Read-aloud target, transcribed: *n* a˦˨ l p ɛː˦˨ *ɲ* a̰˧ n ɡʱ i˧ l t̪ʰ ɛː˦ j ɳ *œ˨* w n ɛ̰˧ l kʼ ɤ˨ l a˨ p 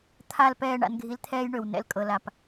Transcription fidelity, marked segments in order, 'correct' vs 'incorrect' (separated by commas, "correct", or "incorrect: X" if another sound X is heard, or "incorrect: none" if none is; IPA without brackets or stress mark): incorrect: t̪ʰ, incorrect: ɳ, incorrect: ø˨